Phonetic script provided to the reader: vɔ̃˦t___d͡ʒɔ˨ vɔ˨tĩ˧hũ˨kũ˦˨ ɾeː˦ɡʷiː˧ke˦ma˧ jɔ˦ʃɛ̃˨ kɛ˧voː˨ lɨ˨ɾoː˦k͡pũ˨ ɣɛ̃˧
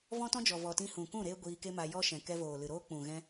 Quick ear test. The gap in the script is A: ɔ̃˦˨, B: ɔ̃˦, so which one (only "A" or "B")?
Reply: B